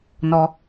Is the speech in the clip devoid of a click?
yes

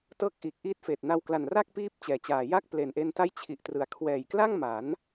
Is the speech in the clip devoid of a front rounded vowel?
yes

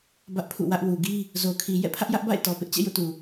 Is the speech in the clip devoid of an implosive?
yes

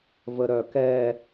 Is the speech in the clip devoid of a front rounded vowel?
no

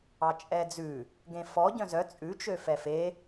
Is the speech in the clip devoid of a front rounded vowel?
no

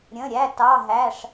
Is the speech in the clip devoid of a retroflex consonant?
no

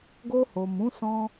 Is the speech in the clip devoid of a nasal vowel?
no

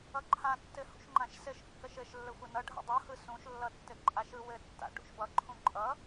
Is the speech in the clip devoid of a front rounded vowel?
yes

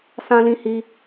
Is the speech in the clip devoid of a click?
yes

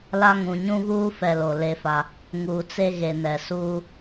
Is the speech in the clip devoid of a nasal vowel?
no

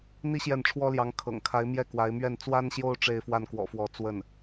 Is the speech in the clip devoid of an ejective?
yes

